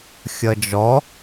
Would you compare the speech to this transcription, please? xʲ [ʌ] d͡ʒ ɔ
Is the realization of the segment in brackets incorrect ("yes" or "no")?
no